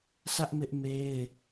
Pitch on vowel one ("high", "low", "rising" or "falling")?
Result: high